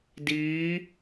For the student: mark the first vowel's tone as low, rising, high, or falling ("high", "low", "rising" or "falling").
rising